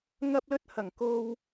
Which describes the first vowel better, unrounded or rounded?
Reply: unrounded